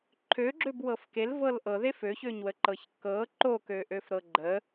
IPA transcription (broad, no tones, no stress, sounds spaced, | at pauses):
ǃʰ ø ɡ͡ǁ ø b w ɤ f k e l v ɤ l ʔ ɤ ð e f ø ç ø ɲ w ə ǃ ɤ ç k ɤ ǃ o k ø ʔ ø f ɾ ɤ ɡ͡ǃ ə